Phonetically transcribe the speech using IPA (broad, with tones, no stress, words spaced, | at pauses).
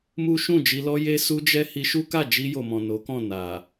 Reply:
mu˦ʃũ˦˨d͡ʒi˧lɔ˦ je˦su˦d͡ʒɛ˦ hi˧ʃu˦ka˦˨ d͡ʒi˧jo˨mɔ̃˨ no˨˦kɔ̃˦˨ na˨